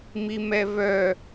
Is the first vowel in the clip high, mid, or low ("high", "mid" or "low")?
high